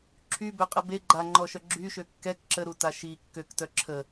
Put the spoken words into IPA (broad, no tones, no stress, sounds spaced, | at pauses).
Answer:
ǁʰ y b ø qʼ ə b e ɡ͡ǃ a ŋ͡ǃ ɔ ʃ œ ɡ͡ǁ y ʃ ø kː ɛ k ǁ ə ɾ u t a ʃ i kː ø k t œ ǁʰ ə